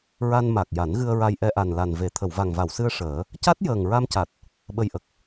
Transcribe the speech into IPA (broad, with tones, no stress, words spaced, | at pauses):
ɹa˧n ma˨˩k̚ ja˨˩˦nɣɨ˧ə̯ɹa˧j ʔɛ˧ʔa˨˩nla˨˩n ve˨˩˨ t̪ʰə˨˩˨wva˨˩ŋva˨˩˨wsɨ˧ə̯ ʂəː˨˩˦ | ca˦˥t̚jəː˨˩ŋɹa˧mca˨˩t̚ | ɓə˧jʔə˨˩k̚